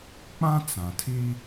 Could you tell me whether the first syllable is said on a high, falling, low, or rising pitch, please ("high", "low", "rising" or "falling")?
high